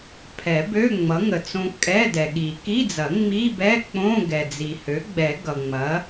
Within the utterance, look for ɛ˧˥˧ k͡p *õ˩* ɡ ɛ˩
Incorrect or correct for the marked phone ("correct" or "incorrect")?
incorrect